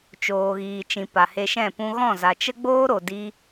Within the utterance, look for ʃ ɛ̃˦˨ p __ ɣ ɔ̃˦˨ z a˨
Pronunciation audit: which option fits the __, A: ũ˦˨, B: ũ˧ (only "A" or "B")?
B